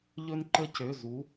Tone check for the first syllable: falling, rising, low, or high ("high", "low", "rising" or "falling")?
high